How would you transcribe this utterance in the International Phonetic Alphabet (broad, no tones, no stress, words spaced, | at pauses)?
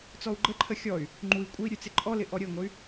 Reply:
t͡sɔu̯ɡ͡ǃəǃʰə xʲɔy̯ | ŋ͡ǃui̯ kʷʼəi̯ ɾʲʉt͡sɪǃʼɔlɪ ʔɔɾʲəi̯ŋʷəy̯